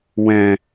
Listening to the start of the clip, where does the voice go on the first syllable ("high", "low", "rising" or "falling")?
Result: low